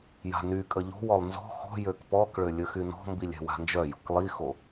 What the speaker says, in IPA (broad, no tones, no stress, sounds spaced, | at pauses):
j a̤ n y kʼ ə ʎ o̤ w ɔ lˠ n z ɔ̤ x ɔ̤ j ø k p ɔ k ɭ ø lʲ ə x y n ɔ̤ m b i lʲ ɛ̤ w a̤ n d͡ʒ œ j o̤ k lˠ i x o